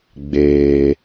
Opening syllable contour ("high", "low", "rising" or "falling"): low